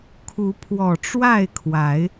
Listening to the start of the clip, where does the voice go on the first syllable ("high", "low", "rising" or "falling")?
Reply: rising